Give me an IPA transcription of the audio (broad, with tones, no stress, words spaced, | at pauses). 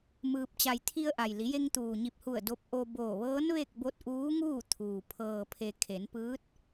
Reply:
mɯː˧p̚t͡ɕa˧j t̪ʰi˧ə̯ʔa˩jli˩˧je˧ŋ t̪uː˩ɲi˧˩p̚hu˧˩ə̯ do˧p̚ʔo˧boː˧˩ʋɤː˧˥n ʋe˥˨k̚ bo˧t̚ ʔuː˧˥ŋuː˥˨t̪ʰuː˩ pʰɤː˩pʰe˩ kʰe˩˧npɯː˧˥t̚